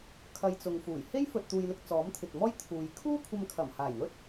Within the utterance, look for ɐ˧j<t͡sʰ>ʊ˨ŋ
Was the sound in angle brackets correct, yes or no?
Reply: no